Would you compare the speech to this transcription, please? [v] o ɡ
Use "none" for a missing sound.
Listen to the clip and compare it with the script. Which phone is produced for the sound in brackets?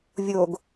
vʲ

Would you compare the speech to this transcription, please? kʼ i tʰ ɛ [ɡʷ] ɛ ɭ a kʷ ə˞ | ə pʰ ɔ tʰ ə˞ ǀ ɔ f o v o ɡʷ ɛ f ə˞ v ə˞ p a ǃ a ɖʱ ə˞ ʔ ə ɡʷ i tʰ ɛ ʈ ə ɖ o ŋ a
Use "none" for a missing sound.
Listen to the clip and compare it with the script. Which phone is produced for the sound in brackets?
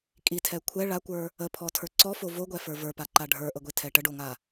kʷʰ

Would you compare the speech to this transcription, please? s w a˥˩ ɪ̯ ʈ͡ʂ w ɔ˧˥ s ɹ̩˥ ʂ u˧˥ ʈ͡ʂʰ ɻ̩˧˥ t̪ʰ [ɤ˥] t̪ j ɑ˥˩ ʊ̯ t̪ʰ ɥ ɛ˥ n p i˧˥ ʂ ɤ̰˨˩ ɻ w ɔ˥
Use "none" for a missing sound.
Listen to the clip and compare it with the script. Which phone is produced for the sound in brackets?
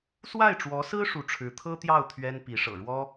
ɤ˥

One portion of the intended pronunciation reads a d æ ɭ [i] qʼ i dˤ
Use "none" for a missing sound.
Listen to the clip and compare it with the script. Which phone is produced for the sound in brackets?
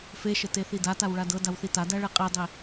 e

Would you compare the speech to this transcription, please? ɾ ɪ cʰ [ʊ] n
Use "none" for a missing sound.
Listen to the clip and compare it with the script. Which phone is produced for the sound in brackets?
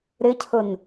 ʊ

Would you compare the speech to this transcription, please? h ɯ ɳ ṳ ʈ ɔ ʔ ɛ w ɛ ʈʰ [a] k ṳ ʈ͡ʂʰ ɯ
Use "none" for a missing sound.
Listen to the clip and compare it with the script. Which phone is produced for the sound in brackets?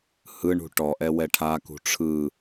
a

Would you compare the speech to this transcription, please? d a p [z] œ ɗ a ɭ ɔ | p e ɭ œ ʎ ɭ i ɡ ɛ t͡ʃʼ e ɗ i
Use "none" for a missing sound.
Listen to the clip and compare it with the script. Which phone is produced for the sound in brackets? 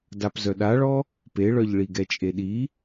z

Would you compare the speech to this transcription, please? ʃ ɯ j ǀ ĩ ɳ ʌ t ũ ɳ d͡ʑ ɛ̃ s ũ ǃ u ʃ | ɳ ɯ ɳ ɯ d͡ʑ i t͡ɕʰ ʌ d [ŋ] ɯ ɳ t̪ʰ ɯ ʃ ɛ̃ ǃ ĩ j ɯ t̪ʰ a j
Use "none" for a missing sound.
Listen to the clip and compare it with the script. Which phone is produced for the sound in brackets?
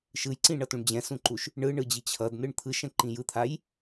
n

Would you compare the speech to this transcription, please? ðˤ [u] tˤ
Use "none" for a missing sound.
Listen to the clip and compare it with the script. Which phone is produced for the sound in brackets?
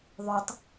u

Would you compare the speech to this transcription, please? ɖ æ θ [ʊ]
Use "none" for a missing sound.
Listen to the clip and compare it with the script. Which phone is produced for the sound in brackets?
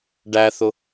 ʊ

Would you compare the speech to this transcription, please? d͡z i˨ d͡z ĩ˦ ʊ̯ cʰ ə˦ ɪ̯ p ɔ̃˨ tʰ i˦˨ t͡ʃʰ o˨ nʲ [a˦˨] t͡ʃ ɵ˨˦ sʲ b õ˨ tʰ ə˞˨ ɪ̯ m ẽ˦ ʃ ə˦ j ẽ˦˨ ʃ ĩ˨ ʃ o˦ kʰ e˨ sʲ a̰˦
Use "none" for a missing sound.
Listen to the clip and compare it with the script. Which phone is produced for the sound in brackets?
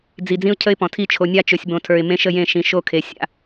a˦˨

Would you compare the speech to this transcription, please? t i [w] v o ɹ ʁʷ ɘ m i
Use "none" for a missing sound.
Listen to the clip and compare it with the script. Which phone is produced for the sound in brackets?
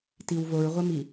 w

